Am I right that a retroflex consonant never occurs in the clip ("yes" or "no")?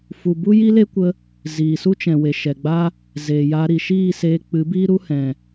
yes